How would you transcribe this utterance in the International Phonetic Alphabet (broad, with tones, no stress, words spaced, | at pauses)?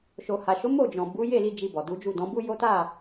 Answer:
ʃo˨ha˨ʃo˨˦ mo˦˨ d͡ʒɔ̃˨ bu˨˦ je˦˨li˧ d͡ʒi˧bɔ˨du˨˦d͡ʒu˦˨ dɔ̃˨˦bu˦jo˦ ta˦˨